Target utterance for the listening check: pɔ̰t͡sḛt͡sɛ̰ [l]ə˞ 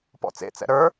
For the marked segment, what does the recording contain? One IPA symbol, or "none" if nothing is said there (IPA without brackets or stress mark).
ɾ